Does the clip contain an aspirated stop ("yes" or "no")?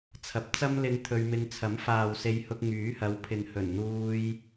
yes